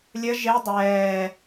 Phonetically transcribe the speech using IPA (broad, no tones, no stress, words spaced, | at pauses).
lʲə ʒe dˤɛː